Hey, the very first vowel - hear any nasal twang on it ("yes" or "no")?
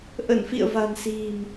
no